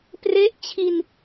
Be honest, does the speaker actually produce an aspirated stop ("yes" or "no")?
yes